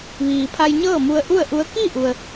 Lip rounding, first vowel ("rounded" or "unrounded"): unrounded